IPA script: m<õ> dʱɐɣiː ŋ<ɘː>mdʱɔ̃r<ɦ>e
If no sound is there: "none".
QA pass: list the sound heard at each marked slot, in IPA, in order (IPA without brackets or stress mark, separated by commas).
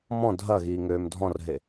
ɔ̃, øː, ɦ